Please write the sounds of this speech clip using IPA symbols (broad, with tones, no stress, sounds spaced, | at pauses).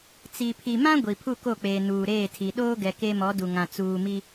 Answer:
t͡s i˨ pʰ i˨ m ã˦ ɡʷ i˨ pʰ u˦˨ k o˦˨ k͡p eː˨ n uː˨ ɾ eː˦˨ tʰ i˨ ɗ oː˦ ɡ ɛ˨ k e˦ m ɔ˨˦ d u˨ ŋ ã˨ t͡s uː˨ m i˦